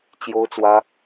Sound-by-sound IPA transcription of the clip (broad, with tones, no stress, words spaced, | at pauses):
t͡ɕjo˥ʊ̯t͡swä˥